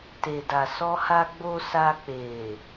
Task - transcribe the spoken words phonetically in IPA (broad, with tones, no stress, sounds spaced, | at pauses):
t e˨ d a˨ s ɔ˧ h a˧ ɡ͡b o˧ s a˧ k͡p e˨